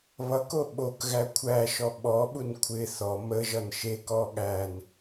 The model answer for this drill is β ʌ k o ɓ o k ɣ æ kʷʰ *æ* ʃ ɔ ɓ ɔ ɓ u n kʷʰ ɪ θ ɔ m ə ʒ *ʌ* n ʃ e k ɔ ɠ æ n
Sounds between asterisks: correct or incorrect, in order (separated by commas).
correct, correct